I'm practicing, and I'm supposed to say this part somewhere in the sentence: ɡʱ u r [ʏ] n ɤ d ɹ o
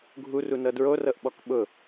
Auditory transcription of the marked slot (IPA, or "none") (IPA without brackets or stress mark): u